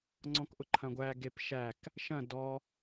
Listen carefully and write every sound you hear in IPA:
ŋ͡ǀ ɔ̃ k ʔ ʊ ǃʰ ɐ̃ ɡʷ æ ɡ e p ʃ æ k | ʃ ɐ̃ d ɔ

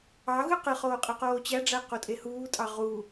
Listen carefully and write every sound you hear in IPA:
ɑ ɣ ɯ q ɯ χ oː qʼ ɯ q oː t͡ɕ æ ɖ͡ʐ æ q o tʼ e h uː tʼ ɑ ʁ u

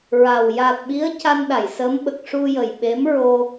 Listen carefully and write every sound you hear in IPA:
ɹ a˨˩ w j aː˨˩ t̚ ɓ i˧˥ ə̯ c a˧ n ɗ a˨˩˨ j s ə˧˥ m ɓ ə˨˩ k̚ ʂ u˧ j ə˨˩ j ɓ e˧˥ m ɹ o˧

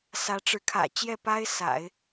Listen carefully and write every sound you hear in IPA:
s ä˧˥ ʈ͡ʂ ɻ̩˧˥ kʰ ä̰˨˩ t͡ɕ j ɛ˥˩ p a˥ ɪ̯ s a̰˨˩˦ ɪ̯

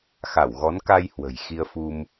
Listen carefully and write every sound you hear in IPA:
x a˧˩ w ɣ ɔ˨˦ n k a˧ j h w ə̤˨˩ j x i˧ ə̯ f u˧ m

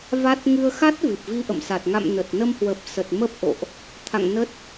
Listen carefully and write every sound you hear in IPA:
v a˦˥ t̚ ŋ ɨ˧ ə̯ x a˦˥ t̚ v i˨˩ p̚ v i˧ ʔ ə̰˧˨ m s a˨˩ t̚ ŋ a̰˧˨ m n ə˨˩ t̚ n ə˧ m h w ə˨˩ p̚ s ə˨˩ t̚ m ə˦˥ p̚ ʔ o̰˧˨ ʔ | t̪ʰ a̰˧˨ ŋ n ə˦˥ t̚

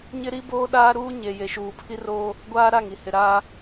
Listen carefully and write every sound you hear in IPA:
ɲ ɪ˦ ɾ i˦ b oː˦ ɗ aː˦ ɾ uː˦ ɲ e˨ j e˨ ʃ uː˨ pʰ i˦ r oː˦ | ɡʷ aː˦ ɾ a˦˨ ŋ i˦˨ h ɪ˨ ɾ aː˦

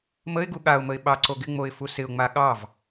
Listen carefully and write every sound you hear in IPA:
m ə ɪ̯ ɡ u ɠ a ʊ̯ m ə ɪ̯ ɓ ɑ ǀ o ɡ ɪ ŋ͡m o ɪ̯ f u s ɪ ʊ̯ ŋ͡m a ɠ ɑ v

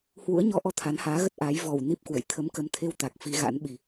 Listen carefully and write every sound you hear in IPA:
h w ṵ˧˥ ə̯ ɲ ɔ˧ ʔ ɔ˧ t̪ʰ a˨˦ n h aː˨˦ ɣ ə˦˥ t̚ ʔ aː˨˦ j v ɔ˧˩ w n i˦˥ p̚ k w ə̰˧˨ j t̪ʰ ə˨˦ m k ə˨˦ m t̪ʰ e˧ w t̪ a˨˩ k̚ f i˨˦ ɣ a̰˧˥ n ɓ i˧

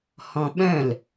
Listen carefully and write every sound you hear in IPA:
h ɔ̃ ɓ œ̃ l

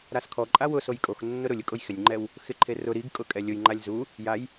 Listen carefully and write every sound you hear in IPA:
ɾ a s kʰ ɔ ǃʼ a w ʊ s o j kʼ o x nː ʊ ɾ ʊ lʲ u kʼ ʊ j x ɪ nʲ ŋ͡ǃ ɛ w | x ɪ ǃʰ e r ʊ ɾ i ɡ kʼ ʊ kʼ ɛ lʲ ʊ j ŋ͡ǃ a lʲ z u | j a j

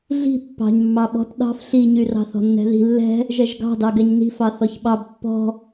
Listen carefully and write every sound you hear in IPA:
ɮ i̤ pː ɑ̤ ɲ mː ɑ ɓ ɔ̤ t ɗ ɑ̤ f ɬ i ɲ y r ɑ̤ θ ɔ̤ nː ɛ̤ ð i̤ lː ɛ̤ | ʒ ɛ ʒ ɡ ɑ̤ d ɑ ɡ ɛ ɲ n i̤ f ɑ θ ɔ ç ɓ ɑ b pː ɔ̤

